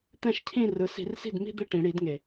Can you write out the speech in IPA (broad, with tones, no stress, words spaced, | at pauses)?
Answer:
t̪ɛ̃˥˧ʃcʰĩ˥˧rɯ˨˦ si̤˧˩˧rsi̤˥˩dmi̤˥˧ d̪e˥˩ʈĩ˧˩˧ɽi˧˩˧dŋe˩